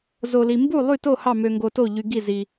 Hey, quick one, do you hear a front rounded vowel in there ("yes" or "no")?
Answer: yes